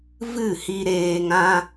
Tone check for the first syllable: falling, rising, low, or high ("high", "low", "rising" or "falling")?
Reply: falling